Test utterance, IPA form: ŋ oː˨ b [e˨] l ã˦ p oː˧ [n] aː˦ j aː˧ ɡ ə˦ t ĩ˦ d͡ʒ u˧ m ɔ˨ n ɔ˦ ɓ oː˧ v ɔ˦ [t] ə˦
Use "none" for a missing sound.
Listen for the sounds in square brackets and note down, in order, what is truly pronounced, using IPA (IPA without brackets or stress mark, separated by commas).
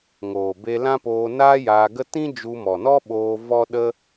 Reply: e˧, n, ɗ